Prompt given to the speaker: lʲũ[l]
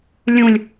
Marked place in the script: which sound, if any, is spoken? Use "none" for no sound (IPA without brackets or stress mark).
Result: lʲ